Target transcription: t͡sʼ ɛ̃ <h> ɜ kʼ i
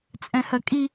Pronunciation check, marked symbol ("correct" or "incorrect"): correct